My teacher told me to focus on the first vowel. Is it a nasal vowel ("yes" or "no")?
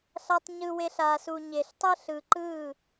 no